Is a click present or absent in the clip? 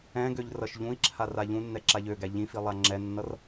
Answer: present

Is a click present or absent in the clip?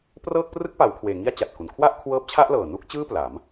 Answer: absent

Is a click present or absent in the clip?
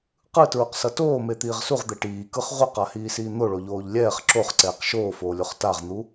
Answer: present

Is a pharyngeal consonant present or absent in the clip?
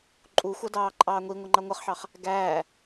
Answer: present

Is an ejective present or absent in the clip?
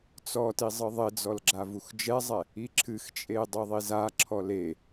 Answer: present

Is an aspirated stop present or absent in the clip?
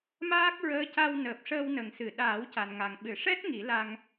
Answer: absent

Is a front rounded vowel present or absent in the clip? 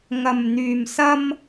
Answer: present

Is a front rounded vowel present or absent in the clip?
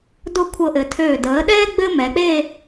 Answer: present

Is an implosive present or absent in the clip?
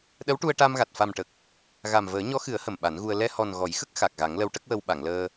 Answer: present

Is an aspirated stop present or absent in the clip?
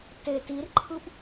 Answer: present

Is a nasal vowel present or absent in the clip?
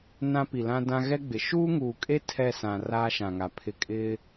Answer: present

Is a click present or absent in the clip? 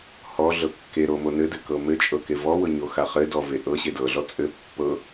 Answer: absent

